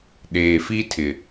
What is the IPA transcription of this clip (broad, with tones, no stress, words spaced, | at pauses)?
ɗeː˨fi˦tʰɪ˨